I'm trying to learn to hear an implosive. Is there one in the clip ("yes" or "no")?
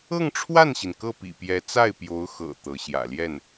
no